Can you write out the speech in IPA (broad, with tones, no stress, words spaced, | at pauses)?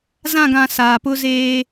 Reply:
zã˦˨ɡã˨ saː˨pʊ˦zeː˦